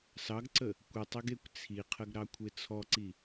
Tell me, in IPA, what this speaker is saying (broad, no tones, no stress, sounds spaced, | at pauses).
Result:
s ɑ ɡ ǀ ə | kʷ i tˤ e ɡ e kʷ t͡sʰ i qʰ ə ɡ ɾ ɑ kʷʰ e t͡sʰ ɔ ǀ i